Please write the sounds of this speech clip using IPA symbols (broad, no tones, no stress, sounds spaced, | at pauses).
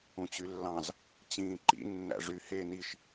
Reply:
ũ t͡ɕ y lː ɑ̃ z | t͡ɕ ĩː ǃ ḭ nː æ̰ ʐ y h eː n i ʃ